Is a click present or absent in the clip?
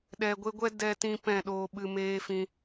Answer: absent